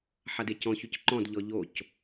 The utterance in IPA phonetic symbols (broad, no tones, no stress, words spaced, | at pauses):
ħadecɔ̃çyc ǃɔ̃dʎɔ ʎoc